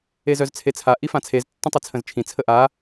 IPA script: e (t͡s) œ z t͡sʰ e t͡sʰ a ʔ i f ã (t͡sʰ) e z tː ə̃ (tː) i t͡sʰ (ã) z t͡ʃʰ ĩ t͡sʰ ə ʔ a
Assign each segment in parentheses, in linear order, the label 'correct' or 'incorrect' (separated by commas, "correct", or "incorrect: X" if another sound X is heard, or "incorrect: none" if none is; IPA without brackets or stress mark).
incorrect: z, correct, incorrect: tˤ, incorrect: ə̃